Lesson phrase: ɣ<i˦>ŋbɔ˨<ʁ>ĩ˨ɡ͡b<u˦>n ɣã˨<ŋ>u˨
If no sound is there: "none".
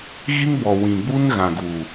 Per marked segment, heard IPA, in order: i˦, w, u˦, ɡ

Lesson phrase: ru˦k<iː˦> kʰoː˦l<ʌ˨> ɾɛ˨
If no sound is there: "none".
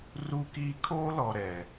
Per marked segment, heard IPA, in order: iː˦, ɔ˨

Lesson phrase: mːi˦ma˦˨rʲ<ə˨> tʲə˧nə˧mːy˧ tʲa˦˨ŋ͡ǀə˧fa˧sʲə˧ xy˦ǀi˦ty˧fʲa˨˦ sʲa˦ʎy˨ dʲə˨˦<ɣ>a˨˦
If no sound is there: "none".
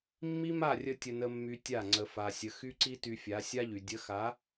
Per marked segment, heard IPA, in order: ə˧, x

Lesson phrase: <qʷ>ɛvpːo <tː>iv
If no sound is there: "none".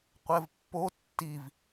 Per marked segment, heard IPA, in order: qʷ, tː

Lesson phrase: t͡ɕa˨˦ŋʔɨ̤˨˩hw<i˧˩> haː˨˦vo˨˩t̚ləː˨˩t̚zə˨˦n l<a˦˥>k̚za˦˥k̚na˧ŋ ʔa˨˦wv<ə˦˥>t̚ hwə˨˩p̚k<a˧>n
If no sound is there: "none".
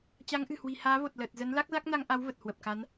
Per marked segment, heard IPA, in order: i̤˨˩, a˦˥, ə˨˩, a˨˦

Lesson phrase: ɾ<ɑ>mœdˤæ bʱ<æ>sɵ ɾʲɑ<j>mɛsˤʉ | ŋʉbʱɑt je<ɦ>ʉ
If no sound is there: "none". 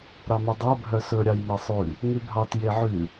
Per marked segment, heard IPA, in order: ɑ, œ, j, ʕ

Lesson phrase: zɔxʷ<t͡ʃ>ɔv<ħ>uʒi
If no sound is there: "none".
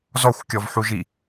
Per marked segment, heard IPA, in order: kʲ, ħ

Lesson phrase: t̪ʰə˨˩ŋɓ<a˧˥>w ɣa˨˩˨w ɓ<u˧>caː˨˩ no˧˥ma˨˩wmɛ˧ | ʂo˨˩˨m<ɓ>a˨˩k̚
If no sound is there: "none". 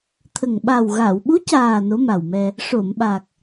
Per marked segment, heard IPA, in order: a˨˩, u˧˥, ɓ

